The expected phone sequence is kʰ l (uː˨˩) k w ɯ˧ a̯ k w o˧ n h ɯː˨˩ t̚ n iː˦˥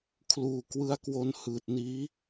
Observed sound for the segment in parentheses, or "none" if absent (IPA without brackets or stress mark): uː˨˩